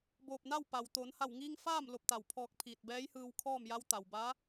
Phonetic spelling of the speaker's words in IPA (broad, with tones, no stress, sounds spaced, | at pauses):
b oː˧˩ p̚ n a˥˨ w p a˩ w t̪ oː˩˧ n h a˧˩ w ŋ iː˧ ŋ f aː˥˨ m l o˧ p̚ t̪ a˧˩ w pʰ ɔː˧ k̚ pʰ iː˧˩ t̚ b ɛː˧˥ j h ɯː˧ w kʰ ɔː˥˨ m j a˧˥ w t̪ a˩ w b aː˧˥